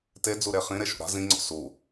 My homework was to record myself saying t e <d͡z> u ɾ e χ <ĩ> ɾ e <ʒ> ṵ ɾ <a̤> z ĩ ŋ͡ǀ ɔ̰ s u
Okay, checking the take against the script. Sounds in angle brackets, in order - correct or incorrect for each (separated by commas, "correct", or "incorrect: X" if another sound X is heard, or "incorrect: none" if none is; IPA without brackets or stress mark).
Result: correct, correct, incorrect: ʃ, correct